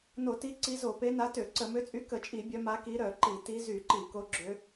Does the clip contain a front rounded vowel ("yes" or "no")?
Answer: yes